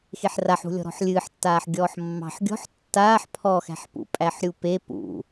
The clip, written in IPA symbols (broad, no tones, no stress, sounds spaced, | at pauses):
x e ħ r a ħ ṳ lʲ ɔ̤ ɾ ɔ̤ ħ lʲ ɨː ħ tː aː ħ ɡʲ ɔː ħ mː ɑ̤ ħ ɡʲ ɔ̤ ħ tː aː ħ pʰ ɔ x æ̤ ħ p ṵ pʼ æ ħ ɾʲ u p e p ṵ